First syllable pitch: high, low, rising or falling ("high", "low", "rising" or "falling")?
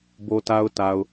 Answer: low